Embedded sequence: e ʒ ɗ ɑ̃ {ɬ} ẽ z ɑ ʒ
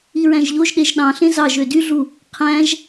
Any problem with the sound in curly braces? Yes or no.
no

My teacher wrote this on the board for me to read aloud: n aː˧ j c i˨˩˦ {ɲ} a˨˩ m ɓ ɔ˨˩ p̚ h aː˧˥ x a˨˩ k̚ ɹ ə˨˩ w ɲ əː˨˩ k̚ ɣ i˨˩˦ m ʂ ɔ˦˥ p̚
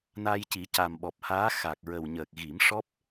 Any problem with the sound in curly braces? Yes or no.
yes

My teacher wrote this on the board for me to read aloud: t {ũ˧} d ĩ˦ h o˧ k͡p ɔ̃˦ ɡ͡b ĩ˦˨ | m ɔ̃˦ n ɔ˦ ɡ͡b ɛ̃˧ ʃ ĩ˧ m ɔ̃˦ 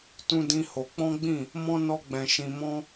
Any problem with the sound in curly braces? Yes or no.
yes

